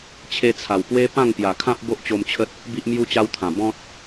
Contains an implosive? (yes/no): no